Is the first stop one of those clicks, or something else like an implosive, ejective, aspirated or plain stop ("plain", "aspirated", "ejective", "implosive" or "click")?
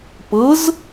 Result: plain